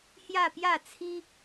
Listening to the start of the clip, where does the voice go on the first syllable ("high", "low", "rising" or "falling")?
falling